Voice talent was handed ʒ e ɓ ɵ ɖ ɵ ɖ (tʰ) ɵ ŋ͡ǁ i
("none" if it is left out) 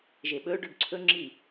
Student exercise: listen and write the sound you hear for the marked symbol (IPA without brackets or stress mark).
ǀʰ